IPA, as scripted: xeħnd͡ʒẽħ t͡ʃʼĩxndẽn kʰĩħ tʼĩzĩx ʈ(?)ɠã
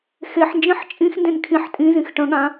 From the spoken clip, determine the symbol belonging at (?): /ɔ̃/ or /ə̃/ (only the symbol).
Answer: ə̃